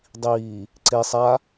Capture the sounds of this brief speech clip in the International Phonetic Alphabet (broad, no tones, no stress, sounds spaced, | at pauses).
dˤ iː | ǀ e sˤ a